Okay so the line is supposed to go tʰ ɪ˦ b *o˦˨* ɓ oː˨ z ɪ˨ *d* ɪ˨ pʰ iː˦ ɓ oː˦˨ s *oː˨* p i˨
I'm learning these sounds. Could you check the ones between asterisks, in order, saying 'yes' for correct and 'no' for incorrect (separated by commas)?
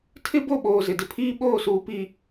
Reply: yes, yes, no